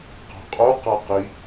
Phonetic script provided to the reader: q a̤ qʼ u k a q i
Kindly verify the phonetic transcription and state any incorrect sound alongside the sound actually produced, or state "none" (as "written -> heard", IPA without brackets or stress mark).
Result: k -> q